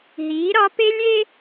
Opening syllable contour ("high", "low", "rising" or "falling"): rising